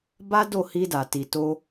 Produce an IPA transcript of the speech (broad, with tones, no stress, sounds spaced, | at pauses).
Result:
b a˦ d o˦˨ h i˧ d a˨ t i˨ t o˧